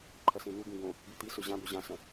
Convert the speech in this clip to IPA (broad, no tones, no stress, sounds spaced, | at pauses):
ǃʰ ɐ s ẽ n̪ u ɡ ũ ɡ õ | b ʉ t̪ i s ɵ ʑ ã b o ʑ ã s ɐ̃